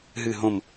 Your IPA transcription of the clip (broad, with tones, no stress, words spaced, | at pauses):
ɦɨ˨˩ɦõ˨˩m